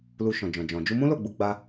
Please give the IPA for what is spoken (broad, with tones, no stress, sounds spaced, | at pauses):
l u˧ ʃ ɔ̃˨ d͡ʒ ɔ̃˨ d͡ʒ ɔ̃˨ d͡ʒ u˧ m ũ˦ l o˦˨ ɡ͡b u˧ ɡ͡b a˧